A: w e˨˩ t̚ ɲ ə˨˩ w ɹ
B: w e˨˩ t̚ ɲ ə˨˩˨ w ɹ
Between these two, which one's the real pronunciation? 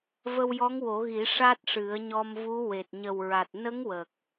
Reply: A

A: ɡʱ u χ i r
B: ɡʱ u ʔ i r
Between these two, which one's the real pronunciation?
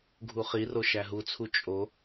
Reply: A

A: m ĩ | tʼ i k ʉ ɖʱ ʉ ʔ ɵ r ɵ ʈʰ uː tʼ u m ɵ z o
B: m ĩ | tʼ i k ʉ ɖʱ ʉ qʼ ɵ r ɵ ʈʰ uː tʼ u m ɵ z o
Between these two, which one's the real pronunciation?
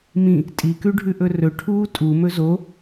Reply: A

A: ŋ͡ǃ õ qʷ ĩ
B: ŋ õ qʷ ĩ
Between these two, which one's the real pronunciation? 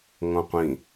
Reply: B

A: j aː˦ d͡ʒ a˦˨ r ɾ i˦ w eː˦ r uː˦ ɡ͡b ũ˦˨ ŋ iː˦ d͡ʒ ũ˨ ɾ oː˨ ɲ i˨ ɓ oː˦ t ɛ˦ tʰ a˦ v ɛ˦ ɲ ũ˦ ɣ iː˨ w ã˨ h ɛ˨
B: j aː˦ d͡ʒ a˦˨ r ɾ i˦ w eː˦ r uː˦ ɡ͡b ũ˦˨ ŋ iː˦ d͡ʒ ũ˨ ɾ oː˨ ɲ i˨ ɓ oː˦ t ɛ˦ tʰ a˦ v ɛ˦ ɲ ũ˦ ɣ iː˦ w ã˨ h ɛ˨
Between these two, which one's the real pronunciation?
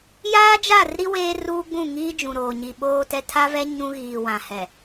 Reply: A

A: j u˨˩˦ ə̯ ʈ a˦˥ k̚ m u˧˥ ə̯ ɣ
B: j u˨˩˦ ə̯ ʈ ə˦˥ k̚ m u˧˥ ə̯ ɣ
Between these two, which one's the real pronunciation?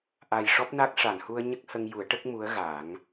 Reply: B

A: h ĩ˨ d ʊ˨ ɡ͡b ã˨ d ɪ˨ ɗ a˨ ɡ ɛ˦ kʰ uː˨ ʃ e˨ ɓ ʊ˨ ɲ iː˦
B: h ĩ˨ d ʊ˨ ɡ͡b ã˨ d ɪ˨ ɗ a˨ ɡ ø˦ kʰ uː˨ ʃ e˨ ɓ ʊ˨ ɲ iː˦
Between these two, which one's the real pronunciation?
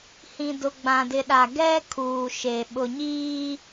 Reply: A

